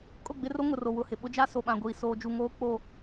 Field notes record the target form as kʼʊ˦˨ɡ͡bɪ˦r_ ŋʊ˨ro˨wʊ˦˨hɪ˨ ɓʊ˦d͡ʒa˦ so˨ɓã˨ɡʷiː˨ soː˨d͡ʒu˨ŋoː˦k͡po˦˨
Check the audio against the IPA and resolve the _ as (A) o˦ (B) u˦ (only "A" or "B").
A